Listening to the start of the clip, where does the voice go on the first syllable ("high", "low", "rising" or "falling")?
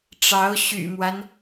rising